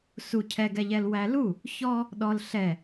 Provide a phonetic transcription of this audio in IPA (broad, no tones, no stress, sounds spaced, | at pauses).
s u cʰ ɛ ɡ ɛ ʎ ɛ l w æ l u | ç ɔ | ɗ ɔ l ɬ ɛ